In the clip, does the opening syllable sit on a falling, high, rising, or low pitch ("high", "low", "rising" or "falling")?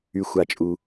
low